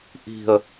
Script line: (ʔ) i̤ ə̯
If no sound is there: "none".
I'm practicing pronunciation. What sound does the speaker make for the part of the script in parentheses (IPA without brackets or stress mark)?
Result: ʔ